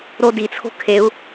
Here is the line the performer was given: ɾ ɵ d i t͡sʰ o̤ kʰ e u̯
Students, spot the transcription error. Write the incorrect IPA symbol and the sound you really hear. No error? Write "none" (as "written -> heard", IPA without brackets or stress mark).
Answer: ɵ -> o